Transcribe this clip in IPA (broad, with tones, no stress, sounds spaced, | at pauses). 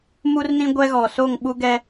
m u˦ r n ĩ˦ ɡʷ ɛ˦ ɣ ɔ˨ s o˦˨ ŋ ɓ u˦ ɡ ɛ˦